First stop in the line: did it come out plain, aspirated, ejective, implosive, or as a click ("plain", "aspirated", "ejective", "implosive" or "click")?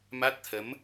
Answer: plain